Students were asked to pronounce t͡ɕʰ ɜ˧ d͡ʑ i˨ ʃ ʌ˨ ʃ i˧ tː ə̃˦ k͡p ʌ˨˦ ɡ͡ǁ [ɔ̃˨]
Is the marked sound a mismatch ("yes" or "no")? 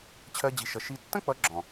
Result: no